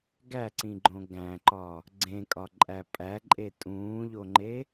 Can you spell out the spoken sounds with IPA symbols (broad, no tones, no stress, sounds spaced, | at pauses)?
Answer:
ɡ æ ǀ ĩ ɡ͡ǃ õ ɡ æ̃ ǃ ɒ | ɡ͡ǀ ẽ kʼ ɒ ǃʼ æ pʼ æ ǃʼ e tʼ ũː ʎ o ŋ͡ǃ e